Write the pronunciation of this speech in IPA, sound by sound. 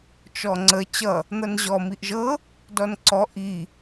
t͡ʃ ɔ ŋ͡ǀ ə t͡ɕ ʌ | n̪ ʌ n ʑ ɔ m i ʔ ʒ ɤ | d ɔ n ǀ ɔ ʔ i

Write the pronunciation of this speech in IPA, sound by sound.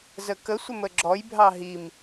z ə k ə sʷ ə m ə ɡ͡ǁ ɔ j bʱ ɑ ɦ i m

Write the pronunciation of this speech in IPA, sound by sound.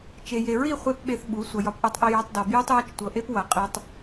t͡ʃ e˨ j e˨ ɹ i˦˨ χʷ e˦ p ɓ e˧ θ ɓ u˨˦ sʷ ʌ˨ j ɒ˧ p ʔ u˧ tˤ ʔ i˧ j ɒ˧ tˤ d ɒ˨ b j u˦ tˤ j ɒ˦ t͡ʃ tʷ ɤ˨ ʔ e˦ p w ʌ˨ qʼ i˨ tˤ

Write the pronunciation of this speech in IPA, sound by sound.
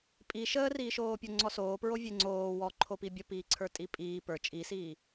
pʼ i ʃ əː r iː ʃ oː pʲ o ŋ͡ǀ ɔ s oː p ɹ o vʲ e ŋ͡ǀ oː w ɔ ǃʰ o p i bʲ ə p iː ǀʰ ə˞ tʼ i pʼ iː p ə˞ t͡ʃʼ i s iː

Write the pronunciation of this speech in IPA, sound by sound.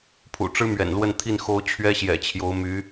pʰ ṵ˨˩ ʈ͡ʂ ɻ̩˥ m ɥ ɛ̰˨˩ n l w ə˥˧ n t̪ʰ i˥˩ n x o˥ ʊ̯ t͡ɕʰ ɥ ɛ˥ ɕ j ɛ̰˨˩ t͡ɕʰ j o˧˥ ʊ̯ m y˧˥

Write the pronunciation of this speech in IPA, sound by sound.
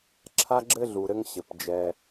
ǁʰ a˦ ɡ͡ǁ ɘ˦ ɮ u˩ ɾ ɘ˦ ŋ ɕ ɘ˩ p d͡ʒ ɛ˨

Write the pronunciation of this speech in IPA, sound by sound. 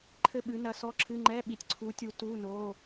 ǃʰ ɘ˥˨ ɓ ɨ˨˦ n ɐ˨˦ s ɔ˧˥˧ ǁʰ ɨ˧˥˧ ŋ͡ǃ ɛ˧˥˧ ɓ i˨ tʲ ǀʰ u˨˦ tʲ u˨˦ t u˧˥˧ n o˧˥˧

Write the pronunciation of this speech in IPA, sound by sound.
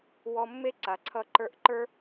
w ɔ˧ mː e˦ ǀ a˨ ǀʰ ʌ˧ ǃ ə˞˧ ʔ ǃ ə˞˦

